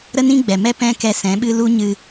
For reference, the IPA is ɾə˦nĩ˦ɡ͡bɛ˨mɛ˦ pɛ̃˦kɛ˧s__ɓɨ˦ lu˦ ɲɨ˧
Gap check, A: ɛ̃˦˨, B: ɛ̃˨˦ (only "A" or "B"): B